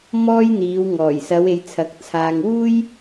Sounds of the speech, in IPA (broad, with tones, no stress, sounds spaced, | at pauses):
m ɔː˥ j n̪ iː˨˧ w ŋ ɔː˨˩ j s ɐ˨˧ w e˨˧ j t͡sʰ ɐ˨˥ k̚ t͡sʰ aː˨ ŋ w uː˥ j